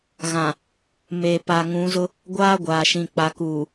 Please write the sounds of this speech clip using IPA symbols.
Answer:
ɣã˨ | me˨ pa˨ŋũ˨˦zʊ˦ | ɡʷaː˦ɡʷaː˨ʃĩ˨ k͡pa˨kuː˨

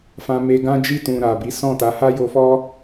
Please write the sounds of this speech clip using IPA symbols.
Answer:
fã˧me˧ ɡã˦d͡ʒi˦˨tũ˨ ɾa˨bi˨˦ sɔ̃˦˨ta˨˦ ha˦jo˧fɔ˦

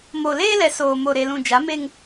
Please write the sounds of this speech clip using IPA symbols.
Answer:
mo˨leː˦lɛ˨ soː˨mo˨ɾe˨lũ˨ d͡ʒa˨˦me˦ŋ

